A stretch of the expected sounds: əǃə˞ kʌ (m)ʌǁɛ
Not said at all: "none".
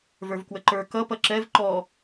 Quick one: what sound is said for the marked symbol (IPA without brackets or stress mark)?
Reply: p